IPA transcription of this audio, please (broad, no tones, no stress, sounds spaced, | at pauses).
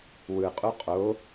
w ɯ qʼ u qʼ o